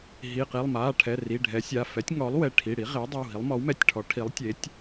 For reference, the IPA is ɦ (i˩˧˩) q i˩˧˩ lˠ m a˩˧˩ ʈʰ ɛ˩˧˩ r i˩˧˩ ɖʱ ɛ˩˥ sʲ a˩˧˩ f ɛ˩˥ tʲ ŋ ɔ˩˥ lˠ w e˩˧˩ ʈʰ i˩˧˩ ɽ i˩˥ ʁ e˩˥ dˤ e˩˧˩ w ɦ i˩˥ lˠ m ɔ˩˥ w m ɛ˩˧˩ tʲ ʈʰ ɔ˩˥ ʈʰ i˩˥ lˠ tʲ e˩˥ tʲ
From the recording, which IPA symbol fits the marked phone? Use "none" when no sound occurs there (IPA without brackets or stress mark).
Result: i˩˧˩